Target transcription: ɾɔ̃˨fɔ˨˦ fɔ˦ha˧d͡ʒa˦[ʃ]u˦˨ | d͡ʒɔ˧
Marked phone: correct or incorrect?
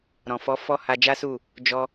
incorrect